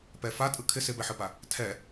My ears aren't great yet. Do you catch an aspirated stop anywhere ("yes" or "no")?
yes